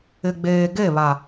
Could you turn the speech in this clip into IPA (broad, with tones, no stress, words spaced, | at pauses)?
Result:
ɪ˨ɡ͡beː˨ɡe˦˨βa˨